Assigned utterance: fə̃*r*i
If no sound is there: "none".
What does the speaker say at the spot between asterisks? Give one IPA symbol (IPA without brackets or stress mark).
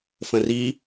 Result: r